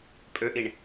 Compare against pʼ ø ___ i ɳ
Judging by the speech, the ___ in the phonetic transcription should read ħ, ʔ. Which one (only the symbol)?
ʔ